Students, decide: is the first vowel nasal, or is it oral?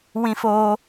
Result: nasal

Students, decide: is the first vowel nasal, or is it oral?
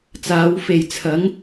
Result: oral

